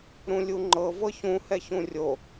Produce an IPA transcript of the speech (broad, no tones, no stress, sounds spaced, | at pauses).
ɾ ũ lʲ u ŋ͡ǃ ɤ v ɤ ç ũ h ɛ ç ũ rʲ o